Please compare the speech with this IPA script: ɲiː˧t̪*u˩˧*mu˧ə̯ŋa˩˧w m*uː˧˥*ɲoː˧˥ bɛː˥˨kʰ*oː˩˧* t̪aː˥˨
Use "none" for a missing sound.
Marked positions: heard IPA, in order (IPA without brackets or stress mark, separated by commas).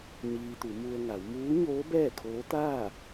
u˩˧, uː˧˥, oː˧˥